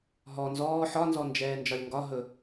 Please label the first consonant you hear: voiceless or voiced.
voiced